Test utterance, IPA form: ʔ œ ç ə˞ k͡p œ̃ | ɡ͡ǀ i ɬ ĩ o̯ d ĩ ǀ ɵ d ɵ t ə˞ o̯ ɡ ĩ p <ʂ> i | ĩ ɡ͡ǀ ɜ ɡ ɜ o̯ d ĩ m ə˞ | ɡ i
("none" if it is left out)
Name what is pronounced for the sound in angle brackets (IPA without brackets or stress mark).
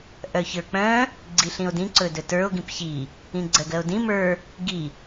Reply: ç